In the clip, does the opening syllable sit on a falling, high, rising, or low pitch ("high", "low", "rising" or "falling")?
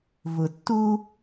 low